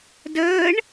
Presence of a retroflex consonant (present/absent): present